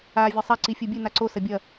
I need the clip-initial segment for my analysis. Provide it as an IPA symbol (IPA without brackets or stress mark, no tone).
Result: aː